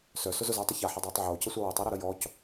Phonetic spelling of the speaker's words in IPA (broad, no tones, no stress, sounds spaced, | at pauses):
s œ s ʊ z ʊ z ʊː tˤ ʊ ç a ħ ɐ dˤ uː tˤ ʕ oː c ə sʷ a w o tˤ a ɾ a ɾ ə j ɔ c